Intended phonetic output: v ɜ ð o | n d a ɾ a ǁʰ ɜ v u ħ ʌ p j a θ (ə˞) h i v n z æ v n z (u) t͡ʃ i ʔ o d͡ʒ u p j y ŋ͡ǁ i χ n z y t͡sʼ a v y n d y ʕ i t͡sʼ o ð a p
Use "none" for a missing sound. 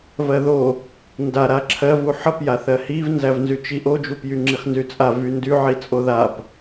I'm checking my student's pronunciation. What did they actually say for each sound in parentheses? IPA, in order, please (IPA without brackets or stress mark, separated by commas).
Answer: ɜ, y